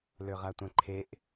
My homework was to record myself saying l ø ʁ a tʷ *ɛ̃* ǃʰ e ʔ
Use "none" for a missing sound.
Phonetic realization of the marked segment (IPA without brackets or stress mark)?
ɛ̃